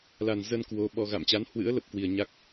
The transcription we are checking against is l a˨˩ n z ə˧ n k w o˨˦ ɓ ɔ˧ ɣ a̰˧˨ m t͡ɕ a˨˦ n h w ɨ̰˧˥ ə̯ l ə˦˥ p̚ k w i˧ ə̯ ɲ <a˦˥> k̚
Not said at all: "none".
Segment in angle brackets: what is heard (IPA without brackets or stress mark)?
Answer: a˦˥